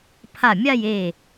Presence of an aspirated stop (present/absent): present